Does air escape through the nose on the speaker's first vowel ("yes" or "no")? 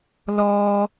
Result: no